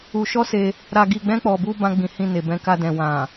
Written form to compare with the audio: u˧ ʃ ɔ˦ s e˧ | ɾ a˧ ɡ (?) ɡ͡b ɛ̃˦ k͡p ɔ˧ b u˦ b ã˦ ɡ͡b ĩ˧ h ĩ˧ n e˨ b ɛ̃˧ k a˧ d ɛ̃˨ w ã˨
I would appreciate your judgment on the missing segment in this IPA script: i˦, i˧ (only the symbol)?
i˧